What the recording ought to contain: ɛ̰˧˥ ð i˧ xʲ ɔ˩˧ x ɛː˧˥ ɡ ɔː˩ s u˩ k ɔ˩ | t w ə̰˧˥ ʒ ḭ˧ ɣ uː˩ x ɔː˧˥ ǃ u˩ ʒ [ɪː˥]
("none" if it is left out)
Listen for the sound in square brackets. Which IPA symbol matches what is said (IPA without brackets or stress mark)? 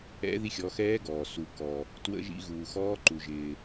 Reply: ɪː˩